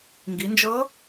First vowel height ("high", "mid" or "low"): high